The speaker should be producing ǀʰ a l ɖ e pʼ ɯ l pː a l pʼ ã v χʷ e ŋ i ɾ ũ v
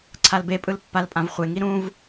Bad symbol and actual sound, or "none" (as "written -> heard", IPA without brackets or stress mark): ɖ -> b